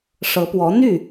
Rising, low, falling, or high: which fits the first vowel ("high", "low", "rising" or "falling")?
rising